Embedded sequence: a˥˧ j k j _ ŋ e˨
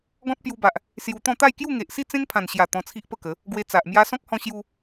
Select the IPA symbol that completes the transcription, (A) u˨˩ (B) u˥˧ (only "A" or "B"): B